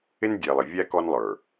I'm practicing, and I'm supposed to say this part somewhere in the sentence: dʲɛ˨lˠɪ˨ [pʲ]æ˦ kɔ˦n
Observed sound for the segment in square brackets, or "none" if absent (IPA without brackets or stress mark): vʲ